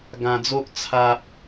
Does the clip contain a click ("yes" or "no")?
no